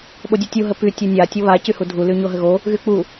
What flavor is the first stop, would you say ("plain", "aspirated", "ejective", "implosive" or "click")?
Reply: implosive